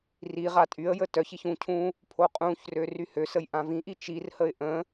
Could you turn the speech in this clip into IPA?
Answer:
r i ʁ a tʼ y ə̯ j ə t œ ç i ç ũ cʰ ũ | pʰ o qʼ ũ ç r ø r y h ø s ə j ʔ ã v ĩ ʔ i t͡ʃ i r h ə ɪ̯ ʔ ə̃

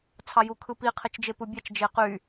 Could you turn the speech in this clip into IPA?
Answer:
t͡sʰ ɑ j u kʰ ɯ p i qʰ e t͡ʃ d͡ʒ e p ɯ bʲ ɑ t͡ʃ d͡ʒ e q y

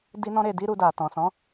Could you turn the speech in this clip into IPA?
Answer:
d i˧ n ɔ̃˧ ɾ e˨ d i˧ ɾ u˨ d a˨ t ɔ̃˨ s ɔ̃˨˦

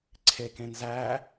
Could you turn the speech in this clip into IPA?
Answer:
ǀʰ e k ẽ n z æ

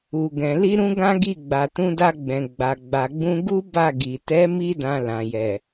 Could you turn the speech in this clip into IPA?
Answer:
u˨ ɡ ɛ̃˨ l i˧ ɾ ũ˧ ɡ ã˦ ɡ i˦˨ ɡ͡b a˨ t ũ˧ d a˧ ɡ͡b ɛ̃˨ ɡ͡b a˨ ɡ͡b a˨ ɡ͡b ũ˧ ɡ u˦ b a˦˨ ɡ i˨ t ɛ˨˦ m i˧ d ã˨ l ã˨ j ɛ˨

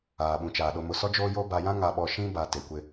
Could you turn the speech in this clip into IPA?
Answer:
aː˨ ɓ ũ˨ t͡ʃ aː˨ ɗ o˨ m ʊ˨ s ɔ˦ d͡ʒ oː˦ j o˦ b a˨ j ã˦ ŋ a˨ ɓ ɔ˨ ʃ ĩ˦ b a˨ t e˨ kʷ ɪ˦

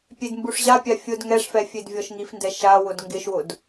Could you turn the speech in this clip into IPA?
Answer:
pʲ e d m b u ʂ ʑ a pʲ a fʲ ʊ d ŋ ɛ ʂ f ɛ fʲ e d vʲ ɔ ʃ ŋ i f n d ɛ ʃ a w ʊ d ŋ ɡ ɪ ʃ w ʊ d

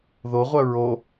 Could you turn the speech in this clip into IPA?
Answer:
ð o ʁʷ œ ɹ o

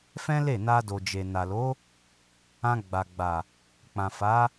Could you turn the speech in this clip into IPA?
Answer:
f ɛ̃˦ l e˦˨ n a˧ d o˨ d͡ʒ e˨ n a˨ l o˨˦ | ã˧ ɡ͡b a˨ ɡ͡b a˨ | k͡p ã˨ f a˨˦

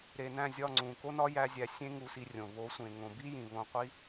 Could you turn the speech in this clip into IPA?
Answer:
ɾ e˨ n æ̃˦˨ zʲ ɒ˦˨ ŋ͡ǀ ũ˨ k o˦ n ɒ˦ j æ˧ zʲ æ˧ sʲ ẽ˦ ŋ u˧ s i˧ rʲ õ˨ β o˨˦ sʷ ẽ˨ ŋ õ˨ b i˦ j ĩ˨ β õ˧ qʷ i˦

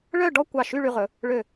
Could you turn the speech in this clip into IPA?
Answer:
ɭ œ˥˧ ɖ ɔ˥˧ kʷ ɑ˧˩ ʃ y˥˧ ɭ y˧ ʁ ɵ˩˧ | ɭ ø˧˩

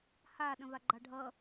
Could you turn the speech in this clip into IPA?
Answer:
h a ɗ ə̃ v a ɡ͡ǃ ɑ ɖʱ ʌ

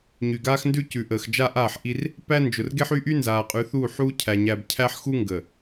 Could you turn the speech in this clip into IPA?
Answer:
ɲ y˨ ɡ aː˦ x n d ʉ˦ c ʉ˨ ʔ əː˨ x d͡ʒ a˦ ʔ aː˦˨ ħ ʔ i˦ r | p æ˦ n d͡ʒ ʊ˨ r ɡ e˦ ħ y˦ ʔ y˦ n z aː˨ qʼ ʉ˨˦ θ uː˦˨ ħ uː˦ cʰ æ˨ ɲ æ˨ b cʰ æ˦ ħ x u˦ ŋ ɡ ə˨

